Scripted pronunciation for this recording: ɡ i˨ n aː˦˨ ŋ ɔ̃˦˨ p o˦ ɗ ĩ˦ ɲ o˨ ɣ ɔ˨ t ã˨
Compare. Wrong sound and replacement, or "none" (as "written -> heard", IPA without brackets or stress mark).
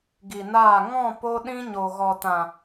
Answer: none